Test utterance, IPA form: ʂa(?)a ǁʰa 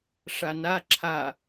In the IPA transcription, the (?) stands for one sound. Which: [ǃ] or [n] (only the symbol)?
n